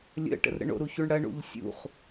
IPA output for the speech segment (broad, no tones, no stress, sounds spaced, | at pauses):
lʲ ə̰ ʈ ə̰ r ɾ ə̰ ɳ o̰ ɾ u ç u ɳ ɽ ɐ ɳ ṵ ʎ sʲ ṵ χ